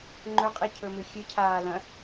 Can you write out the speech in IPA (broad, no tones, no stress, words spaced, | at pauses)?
ŋ͡ǃɵqʼicʰɵmɨ xʲɨcʰaː lɐ̃